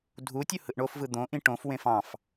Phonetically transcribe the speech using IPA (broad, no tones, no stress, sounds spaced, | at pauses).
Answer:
dʱ u tʲ u h ɯ ʔ ɳ o f v ɯ d̪ õ ʔ ĩ ʈ õ f w ẽ f ɑ̃ f